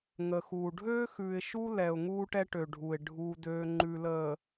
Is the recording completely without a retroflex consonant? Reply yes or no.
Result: no